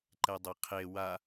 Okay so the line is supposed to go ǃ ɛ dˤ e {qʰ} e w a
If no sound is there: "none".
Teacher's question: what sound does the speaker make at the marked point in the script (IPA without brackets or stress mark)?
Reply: qʰ